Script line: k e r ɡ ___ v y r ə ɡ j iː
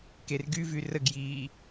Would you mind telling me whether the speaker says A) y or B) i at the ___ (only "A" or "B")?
A